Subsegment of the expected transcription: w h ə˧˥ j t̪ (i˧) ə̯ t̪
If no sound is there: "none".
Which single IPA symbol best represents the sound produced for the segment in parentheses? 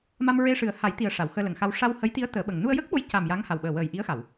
i˧˥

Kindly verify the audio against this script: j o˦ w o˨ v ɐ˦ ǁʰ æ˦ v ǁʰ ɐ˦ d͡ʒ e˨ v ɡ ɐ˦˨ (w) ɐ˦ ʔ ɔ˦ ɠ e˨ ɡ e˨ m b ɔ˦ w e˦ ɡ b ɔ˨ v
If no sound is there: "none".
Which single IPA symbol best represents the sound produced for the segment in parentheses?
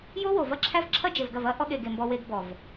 v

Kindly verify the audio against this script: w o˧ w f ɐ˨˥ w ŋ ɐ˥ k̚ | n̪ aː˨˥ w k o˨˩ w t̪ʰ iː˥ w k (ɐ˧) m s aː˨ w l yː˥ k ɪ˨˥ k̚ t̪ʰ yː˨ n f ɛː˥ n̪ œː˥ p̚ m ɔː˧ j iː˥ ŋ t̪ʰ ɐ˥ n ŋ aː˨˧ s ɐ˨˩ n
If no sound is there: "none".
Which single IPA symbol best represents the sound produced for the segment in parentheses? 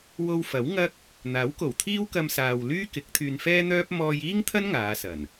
ɐ˧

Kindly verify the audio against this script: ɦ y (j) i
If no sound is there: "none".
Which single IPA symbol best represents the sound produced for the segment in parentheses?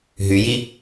j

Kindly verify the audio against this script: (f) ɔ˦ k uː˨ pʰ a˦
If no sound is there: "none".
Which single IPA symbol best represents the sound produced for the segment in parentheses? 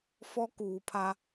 f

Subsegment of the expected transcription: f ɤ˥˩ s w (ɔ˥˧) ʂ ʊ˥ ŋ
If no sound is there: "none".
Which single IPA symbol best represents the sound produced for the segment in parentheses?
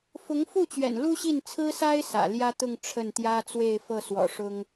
ɔ̰˨˩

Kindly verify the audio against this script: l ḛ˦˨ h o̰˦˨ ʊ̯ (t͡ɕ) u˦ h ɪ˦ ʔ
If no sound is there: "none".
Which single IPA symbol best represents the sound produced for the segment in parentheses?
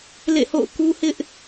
k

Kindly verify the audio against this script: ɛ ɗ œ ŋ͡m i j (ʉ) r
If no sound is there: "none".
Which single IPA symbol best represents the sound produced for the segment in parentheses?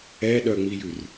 ʉ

